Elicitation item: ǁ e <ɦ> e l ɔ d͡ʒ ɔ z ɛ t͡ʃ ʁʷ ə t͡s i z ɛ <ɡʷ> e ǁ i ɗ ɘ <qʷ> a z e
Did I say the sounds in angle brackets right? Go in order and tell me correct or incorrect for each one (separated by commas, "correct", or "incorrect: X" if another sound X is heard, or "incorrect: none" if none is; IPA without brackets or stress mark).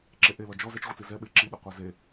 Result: incorrect: ʔ, incorrect: ɓ, correct